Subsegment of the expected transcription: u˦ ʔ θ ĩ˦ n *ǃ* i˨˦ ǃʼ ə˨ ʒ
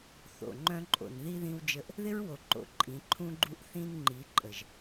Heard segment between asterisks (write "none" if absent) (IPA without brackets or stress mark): ŋ͡ǃ